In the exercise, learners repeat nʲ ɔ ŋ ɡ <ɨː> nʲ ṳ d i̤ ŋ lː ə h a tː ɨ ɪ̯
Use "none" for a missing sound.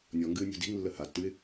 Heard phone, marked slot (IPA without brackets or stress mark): ɨː